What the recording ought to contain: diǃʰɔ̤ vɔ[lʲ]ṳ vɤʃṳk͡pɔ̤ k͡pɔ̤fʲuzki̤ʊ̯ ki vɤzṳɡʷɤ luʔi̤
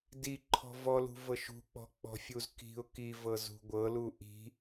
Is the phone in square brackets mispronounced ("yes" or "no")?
yes